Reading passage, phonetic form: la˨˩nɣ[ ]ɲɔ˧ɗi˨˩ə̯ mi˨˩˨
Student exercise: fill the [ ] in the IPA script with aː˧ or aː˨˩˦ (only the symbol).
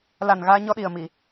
aː˧